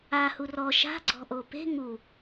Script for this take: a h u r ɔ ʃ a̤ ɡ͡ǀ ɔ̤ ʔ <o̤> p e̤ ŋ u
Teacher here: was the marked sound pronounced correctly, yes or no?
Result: no